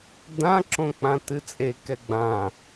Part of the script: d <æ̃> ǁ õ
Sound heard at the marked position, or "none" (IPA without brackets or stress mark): ã